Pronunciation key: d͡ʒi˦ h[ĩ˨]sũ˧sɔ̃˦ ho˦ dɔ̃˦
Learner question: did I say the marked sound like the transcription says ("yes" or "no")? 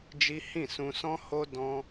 no